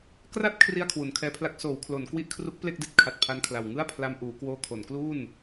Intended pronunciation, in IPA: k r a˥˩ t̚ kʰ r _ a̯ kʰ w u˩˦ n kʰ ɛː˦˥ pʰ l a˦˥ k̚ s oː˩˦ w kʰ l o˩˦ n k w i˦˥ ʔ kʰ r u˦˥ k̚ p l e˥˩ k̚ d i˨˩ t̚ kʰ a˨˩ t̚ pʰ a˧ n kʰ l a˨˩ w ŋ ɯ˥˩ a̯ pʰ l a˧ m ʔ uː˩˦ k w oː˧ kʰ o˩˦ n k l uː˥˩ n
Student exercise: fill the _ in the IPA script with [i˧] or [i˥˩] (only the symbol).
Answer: i˥˩